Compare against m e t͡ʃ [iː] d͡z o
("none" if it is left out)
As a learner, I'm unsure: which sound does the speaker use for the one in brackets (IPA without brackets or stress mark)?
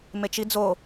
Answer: i